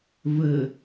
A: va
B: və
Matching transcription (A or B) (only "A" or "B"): B